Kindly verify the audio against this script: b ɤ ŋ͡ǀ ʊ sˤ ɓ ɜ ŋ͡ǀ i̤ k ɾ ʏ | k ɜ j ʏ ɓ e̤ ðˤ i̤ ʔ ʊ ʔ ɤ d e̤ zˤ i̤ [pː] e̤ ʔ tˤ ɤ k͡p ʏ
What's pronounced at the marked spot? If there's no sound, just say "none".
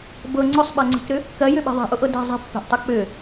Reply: pː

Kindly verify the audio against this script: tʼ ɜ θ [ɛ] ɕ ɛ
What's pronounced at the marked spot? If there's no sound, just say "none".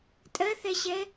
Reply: ɛ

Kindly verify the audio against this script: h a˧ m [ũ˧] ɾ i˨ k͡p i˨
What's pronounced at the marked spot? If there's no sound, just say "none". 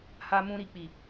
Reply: ũ˧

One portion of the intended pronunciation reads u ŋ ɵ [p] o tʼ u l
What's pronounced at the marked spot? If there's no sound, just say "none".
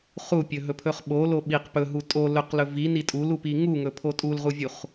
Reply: pʰ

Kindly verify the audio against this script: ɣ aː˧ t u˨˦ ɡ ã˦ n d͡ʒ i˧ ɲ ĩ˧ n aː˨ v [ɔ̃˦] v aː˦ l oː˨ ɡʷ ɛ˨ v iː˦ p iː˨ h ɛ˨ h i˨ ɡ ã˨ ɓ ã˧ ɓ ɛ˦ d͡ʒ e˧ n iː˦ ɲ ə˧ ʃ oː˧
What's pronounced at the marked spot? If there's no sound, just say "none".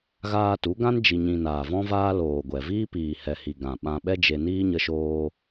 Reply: ɔ̃˦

